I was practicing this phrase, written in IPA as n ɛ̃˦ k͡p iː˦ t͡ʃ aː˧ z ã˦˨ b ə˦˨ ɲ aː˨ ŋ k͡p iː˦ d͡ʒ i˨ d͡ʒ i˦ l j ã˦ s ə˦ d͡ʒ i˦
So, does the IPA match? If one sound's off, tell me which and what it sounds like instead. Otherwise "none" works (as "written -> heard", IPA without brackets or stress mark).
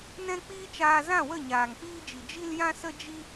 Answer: b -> w